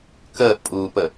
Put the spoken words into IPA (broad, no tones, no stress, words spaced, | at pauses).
kəːʔpʼuːpə